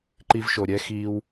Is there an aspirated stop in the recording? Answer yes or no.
no